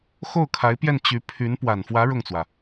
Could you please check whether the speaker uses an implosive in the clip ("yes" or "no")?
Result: no